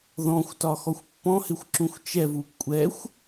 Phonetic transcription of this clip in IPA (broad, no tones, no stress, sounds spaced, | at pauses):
ð ɔ̃ xʷ t ɒ x ɔ xʷ pː ɔ̃ h ɪ xʷ ǁ ũ xʷ t͡ʃ ɛ v u kʷʼ ɛ xʷ